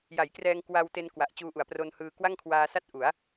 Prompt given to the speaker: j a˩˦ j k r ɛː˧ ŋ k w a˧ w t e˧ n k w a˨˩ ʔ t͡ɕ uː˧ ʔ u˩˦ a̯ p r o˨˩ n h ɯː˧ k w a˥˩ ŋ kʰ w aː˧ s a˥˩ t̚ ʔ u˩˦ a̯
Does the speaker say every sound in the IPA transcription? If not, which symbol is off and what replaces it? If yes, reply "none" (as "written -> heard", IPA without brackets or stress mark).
o˨˩ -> o˧